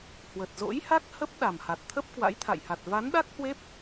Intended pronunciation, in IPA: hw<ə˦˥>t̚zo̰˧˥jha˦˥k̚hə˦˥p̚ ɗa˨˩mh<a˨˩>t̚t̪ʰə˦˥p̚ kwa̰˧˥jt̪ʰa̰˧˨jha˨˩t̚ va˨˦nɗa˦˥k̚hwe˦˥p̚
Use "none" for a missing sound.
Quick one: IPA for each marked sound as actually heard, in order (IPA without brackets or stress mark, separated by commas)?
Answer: ə˨˩, a˨˩